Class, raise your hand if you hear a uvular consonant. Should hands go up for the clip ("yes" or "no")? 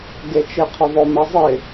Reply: yes